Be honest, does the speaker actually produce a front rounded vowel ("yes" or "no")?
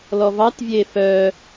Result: yes